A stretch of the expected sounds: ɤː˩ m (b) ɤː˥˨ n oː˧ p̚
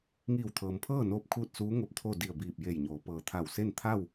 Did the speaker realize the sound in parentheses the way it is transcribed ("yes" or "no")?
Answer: no